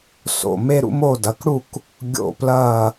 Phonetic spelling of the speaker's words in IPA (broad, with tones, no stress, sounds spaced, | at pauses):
s o̰˦˨ m e˦ ɾ ṵ˦ m o˦˨ d ɐ˩˧˩ k ɽ u˦˨ k | ɡʲ o̰˦˨ p l ɐː˦˨